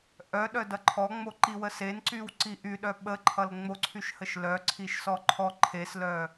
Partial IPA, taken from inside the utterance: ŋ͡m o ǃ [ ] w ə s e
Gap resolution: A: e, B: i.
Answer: B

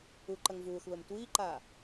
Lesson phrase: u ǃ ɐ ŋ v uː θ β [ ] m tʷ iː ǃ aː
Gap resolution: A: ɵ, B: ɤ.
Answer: A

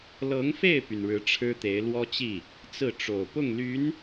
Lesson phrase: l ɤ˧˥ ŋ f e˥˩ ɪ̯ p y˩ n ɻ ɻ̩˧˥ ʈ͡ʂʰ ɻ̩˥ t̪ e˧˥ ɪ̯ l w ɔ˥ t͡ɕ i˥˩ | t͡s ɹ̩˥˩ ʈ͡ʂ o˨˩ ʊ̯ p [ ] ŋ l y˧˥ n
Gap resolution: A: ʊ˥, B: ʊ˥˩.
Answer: B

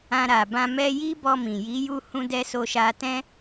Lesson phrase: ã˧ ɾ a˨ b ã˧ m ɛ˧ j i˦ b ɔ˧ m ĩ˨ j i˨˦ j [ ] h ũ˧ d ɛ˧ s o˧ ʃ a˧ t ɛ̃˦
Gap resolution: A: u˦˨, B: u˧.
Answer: B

